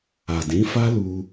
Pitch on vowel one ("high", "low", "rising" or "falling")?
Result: low